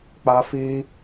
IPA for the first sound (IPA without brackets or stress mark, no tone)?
k͡p